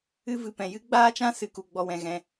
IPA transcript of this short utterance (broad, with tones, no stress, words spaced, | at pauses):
ɨ˦vɨ˧pɛ̃˧ jɨ˦ɡ͡baː˦t͡ʃã˦ sɨ˧ku˧ɡ͡bɔ˧wɛ̃˧ ɣɛ̃˧